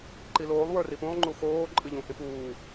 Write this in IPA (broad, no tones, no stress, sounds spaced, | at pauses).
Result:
ǃ i l oː lˠ w ə˞ r i p ũ lˠ ŋ͡ǃ u x oː ǃʼ ɨ ʎ ũ h ĩ p uː